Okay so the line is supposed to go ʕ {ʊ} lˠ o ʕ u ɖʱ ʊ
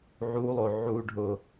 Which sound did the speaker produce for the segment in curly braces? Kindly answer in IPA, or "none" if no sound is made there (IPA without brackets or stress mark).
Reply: u